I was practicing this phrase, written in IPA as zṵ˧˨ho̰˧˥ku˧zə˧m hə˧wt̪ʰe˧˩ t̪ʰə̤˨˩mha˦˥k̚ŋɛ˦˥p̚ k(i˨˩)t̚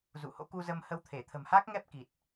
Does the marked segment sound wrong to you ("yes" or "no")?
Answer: no